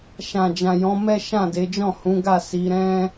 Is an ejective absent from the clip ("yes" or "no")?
yes